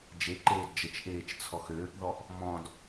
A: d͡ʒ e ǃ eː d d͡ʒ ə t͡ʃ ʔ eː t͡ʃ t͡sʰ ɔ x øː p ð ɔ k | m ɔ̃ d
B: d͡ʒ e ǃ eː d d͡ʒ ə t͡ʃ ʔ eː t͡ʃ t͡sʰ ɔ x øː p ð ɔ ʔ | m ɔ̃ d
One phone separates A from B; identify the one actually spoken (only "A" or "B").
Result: B